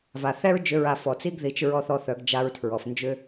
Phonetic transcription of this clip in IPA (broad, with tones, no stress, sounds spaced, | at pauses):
v a˩ θ ɛ˥ ɹ d͡ʒ ʏ˧˥ ɹ a˧ f ɔ˩ t͡s i˥ ɡ ð i˩˧ t͡ʃ ɹ ɔ˧ θ ɔ˧ θ œ˩˧ ɡ d͡ʒ a˧ ɹ tʰ ɹ ɔ˩ f n d͡ʒ ʏ˥